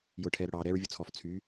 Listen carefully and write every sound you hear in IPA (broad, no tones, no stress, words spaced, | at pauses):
jʊːʈʰɛːɾʊɽɑː ɾɛːɹvʲʊt͡sʰɔf t͡sʰy